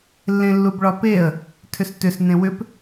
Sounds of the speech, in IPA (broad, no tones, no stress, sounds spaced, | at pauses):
lː ẽ lː u b ɭ ɒ p e ə̯ | tʰ ʏ s t ʏ s n ẽ w ʏ p